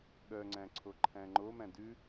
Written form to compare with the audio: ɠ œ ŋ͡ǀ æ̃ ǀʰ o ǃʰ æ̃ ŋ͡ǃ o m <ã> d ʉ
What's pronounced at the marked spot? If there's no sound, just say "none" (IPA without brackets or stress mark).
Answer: æ̃